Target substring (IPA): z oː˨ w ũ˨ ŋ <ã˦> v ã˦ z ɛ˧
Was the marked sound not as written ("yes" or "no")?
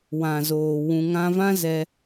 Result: yes